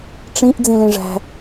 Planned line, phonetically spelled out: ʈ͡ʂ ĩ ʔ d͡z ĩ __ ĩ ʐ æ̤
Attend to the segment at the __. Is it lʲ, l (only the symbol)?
l